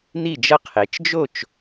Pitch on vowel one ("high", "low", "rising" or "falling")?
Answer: falling